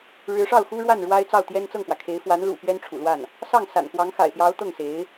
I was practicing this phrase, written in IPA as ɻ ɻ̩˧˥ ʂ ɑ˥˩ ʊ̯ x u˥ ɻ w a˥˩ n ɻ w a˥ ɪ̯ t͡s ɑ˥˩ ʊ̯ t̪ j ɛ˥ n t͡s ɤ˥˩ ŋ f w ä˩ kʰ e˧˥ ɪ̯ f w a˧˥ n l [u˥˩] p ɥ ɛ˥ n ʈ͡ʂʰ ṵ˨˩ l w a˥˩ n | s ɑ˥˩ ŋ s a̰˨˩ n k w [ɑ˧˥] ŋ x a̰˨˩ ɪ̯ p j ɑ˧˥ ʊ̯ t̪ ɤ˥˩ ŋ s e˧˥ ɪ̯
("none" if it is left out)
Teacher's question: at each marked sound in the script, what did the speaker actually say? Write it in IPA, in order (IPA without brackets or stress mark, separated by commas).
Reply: ṵ˨˩, ɑ˧˥